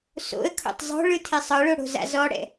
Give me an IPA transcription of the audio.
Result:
so̰ə̯kʰo̰tˤ zˤo̤ɭɯ tʰesˤɤɭo ɽo̤za̰zɔɽɛ̰

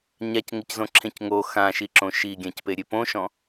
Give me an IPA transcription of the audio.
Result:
ɲac ŋɪczõǁʰẽcŋo xãʃiǁõ ʃiɡʲãcpe ɾʲepõʃɔ̃

